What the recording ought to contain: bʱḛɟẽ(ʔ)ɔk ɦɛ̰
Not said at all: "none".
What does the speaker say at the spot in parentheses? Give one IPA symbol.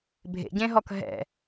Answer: ɦ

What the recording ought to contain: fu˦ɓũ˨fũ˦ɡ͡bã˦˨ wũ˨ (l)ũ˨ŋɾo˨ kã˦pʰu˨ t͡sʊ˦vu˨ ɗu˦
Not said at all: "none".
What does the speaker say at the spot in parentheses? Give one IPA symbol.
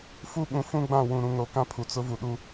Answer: ɾ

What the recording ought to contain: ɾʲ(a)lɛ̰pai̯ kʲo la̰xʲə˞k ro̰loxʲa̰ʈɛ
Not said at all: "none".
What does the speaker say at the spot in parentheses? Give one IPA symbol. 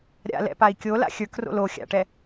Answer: a̰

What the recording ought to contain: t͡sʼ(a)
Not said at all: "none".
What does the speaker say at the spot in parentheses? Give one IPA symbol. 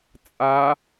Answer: a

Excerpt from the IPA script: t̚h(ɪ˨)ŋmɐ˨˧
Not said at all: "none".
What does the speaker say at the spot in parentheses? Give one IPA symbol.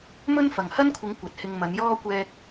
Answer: ɪ˧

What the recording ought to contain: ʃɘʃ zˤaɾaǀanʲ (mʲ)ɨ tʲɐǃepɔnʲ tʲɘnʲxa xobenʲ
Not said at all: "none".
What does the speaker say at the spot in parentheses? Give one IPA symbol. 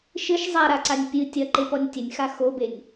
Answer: pʲ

